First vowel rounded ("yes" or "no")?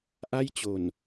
no